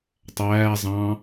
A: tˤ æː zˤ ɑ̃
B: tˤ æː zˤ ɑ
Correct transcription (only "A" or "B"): A